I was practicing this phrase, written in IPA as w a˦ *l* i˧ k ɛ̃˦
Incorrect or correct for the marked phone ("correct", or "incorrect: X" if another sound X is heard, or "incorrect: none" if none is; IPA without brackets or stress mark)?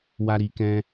incorrect: ɾ